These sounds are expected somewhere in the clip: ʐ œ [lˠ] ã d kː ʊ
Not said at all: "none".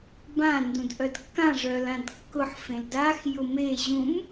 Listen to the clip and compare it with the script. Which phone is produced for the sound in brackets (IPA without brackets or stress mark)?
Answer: l